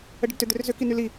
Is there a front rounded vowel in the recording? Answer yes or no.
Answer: yes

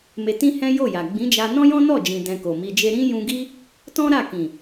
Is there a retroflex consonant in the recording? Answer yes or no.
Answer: no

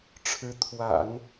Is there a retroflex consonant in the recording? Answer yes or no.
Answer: yes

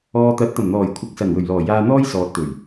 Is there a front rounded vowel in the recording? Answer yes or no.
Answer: no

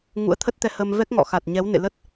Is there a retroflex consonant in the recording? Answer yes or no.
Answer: no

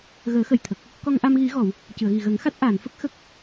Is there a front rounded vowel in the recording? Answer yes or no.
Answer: no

